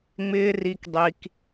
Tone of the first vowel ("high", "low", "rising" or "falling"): high